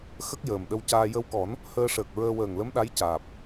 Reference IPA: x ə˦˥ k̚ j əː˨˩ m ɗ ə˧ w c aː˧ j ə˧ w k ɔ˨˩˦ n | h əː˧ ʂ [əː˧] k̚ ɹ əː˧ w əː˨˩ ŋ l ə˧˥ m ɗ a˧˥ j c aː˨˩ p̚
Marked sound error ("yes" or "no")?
yes